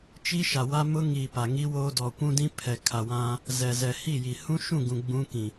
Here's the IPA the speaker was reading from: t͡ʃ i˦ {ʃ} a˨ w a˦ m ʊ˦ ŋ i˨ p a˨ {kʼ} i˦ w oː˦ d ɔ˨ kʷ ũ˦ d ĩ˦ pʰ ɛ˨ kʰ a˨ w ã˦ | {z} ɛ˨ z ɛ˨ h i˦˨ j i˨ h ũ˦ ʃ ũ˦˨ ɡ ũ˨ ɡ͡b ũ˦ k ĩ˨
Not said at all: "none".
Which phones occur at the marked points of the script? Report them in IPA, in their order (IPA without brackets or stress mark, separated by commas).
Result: ʃ, ŋ, z